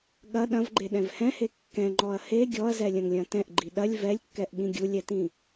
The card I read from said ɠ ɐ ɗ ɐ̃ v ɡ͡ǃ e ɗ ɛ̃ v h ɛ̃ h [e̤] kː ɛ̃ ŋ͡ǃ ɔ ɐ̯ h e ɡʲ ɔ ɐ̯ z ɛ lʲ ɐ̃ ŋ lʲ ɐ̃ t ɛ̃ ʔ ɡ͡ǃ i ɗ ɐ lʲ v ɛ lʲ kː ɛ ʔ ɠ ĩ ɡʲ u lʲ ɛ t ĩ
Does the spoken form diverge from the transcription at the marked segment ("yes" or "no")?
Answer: yes